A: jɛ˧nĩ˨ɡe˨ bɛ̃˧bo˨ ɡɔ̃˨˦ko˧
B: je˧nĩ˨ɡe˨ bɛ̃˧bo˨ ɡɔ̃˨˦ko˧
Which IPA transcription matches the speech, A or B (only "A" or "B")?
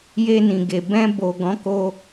B